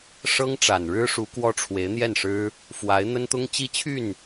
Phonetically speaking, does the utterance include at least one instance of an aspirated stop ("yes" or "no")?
yes